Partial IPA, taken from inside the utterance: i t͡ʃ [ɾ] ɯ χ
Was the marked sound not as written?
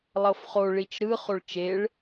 no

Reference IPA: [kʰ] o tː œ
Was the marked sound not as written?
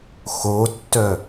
yes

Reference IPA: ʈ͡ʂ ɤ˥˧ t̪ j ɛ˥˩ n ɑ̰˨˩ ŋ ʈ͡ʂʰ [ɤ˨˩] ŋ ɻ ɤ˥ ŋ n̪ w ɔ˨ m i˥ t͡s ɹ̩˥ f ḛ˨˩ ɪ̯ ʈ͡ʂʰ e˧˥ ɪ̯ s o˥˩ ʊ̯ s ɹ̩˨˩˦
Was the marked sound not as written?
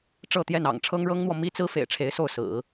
yes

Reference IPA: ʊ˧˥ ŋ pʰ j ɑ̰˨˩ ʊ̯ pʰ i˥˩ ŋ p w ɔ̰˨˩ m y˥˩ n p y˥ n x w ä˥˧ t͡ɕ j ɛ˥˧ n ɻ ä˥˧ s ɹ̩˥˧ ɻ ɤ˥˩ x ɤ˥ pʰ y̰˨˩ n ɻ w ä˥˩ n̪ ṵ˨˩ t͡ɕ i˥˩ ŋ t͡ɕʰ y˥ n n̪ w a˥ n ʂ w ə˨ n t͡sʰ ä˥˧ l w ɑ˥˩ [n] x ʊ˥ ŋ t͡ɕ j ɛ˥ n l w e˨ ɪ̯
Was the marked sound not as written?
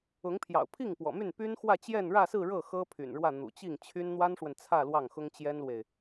yes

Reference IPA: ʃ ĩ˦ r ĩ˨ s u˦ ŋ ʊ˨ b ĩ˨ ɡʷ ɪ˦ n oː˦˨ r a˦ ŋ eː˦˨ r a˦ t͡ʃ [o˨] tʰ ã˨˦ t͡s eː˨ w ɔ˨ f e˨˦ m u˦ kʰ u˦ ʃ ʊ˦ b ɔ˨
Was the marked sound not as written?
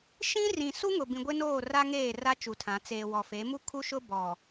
yes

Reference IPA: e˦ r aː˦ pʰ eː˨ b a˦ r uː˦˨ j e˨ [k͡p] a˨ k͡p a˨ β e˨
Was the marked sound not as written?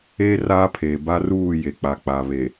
no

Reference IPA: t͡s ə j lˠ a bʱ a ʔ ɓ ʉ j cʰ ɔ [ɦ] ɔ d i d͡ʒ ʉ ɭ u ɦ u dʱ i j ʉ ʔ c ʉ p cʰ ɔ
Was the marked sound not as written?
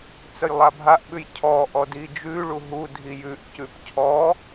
yes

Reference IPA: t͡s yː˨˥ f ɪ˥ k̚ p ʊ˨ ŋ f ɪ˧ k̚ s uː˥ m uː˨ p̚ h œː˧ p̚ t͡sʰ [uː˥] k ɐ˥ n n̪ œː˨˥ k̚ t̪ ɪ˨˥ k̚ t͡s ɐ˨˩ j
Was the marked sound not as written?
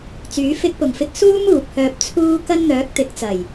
no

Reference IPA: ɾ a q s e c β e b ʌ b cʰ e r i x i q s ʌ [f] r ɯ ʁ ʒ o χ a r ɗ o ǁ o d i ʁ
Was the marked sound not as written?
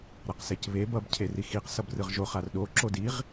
yes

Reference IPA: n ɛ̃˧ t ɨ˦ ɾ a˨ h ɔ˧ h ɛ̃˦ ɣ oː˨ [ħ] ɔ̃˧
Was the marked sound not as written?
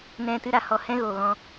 yes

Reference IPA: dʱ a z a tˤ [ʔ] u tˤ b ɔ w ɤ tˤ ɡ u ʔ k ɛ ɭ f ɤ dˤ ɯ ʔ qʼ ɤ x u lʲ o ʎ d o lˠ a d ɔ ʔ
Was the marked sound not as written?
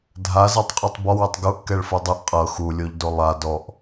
yes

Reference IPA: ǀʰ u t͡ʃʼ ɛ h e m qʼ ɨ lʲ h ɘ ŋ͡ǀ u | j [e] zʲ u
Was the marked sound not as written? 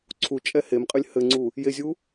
no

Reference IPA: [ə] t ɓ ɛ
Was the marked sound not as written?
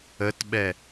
no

